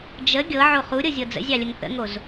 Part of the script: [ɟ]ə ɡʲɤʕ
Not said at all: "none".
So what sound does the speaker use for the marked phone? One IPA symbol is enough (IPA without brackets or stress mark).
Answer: d͡ʒ